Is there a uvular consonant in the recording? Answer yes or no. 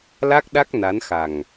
no